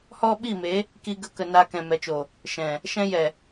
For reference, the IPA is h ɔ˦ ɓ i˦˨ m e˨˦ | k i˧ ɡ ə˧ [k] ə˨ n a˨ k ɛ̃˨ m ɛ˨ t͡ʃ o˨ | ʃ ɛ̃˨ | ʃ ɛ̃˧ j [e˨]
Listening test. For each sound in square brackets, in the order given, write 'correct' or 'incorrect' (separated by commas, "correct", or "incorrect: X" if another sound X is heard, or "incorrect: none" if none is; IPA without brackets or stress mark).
correct, incorrect: ɛ˨